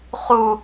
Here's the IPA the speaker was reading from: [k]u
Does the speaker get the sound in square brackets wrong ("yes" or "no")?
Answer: yes